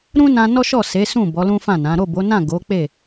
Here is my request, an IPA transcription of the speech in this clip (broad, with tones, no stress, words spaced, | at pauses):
ɾũ˦nã˧ nɔ˦ʃɔ˦˨se˨˦sũ˦˨ bɔ˨˦lũ˦fã˦˨nã˨˦ ɾo˦˨bo˨˦nã˦˨ ɡo˨˦k͡pe˦˨